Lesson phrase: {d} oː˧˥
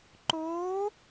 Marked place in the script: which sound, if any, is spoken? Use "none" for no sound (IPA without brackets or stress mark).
ǃ